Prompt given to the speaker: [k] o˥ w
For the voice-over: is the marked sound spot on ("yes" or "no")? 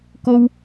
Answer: yes